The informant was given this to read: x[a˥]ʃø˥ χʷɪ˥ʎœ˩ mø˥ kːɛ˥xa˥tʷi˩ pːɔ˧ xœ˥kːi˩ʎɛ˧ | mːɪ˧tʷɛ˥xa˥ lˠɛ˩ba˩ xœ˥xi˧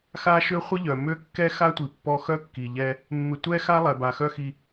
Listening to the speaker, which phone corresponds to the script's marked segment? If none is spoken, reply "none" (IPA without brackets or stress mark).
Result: a˥